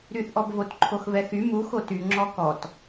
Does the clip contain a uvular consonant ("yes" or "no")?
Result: no